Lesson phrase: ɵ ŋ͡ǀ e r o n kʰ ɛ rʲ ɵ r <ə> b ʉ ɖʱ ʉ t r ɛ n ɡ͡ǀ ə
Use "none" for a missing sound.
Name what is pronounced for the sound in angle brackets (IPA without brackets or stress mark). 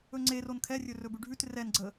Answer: ɵ